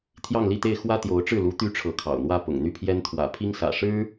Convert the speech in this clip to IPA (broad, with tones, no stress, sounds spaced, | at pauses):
t̪ʰ j ɑ˥˧ ŋ l i˥˧ t̪ e˥˩ ɪ̯ x w ä˥ t̪ j o˧˥ ʊ̯ ʈ͡ʂ ɻ̩˥˩ l u˧˥ t̪ y˥ ʈ͡ʂʰ ɤ˧˥ kʰ ɑ̰˨˩ ʊ̯ n̪ w ä˥˩ p ʊ̰˨˩ ŋ n̪ y˥˩ pʰ j ɛ˥ n t̪ʰ w ä̰˨˩ pʰ i˥ ŋ s ä̰˨˩ ʂ ɻ̩˥